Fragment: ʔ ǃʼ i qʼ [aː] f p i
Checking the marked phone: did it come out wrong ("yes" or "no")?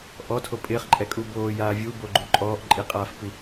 no